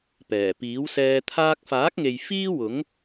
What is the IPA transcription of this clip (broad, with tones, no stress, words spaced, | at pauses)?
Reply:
pɛː˨˩piː˨˥wsɛː˧ t̪ʰaː˧k̚faː˨˥k̚ŋe˨j fiː˥wʊ˨˥ŋ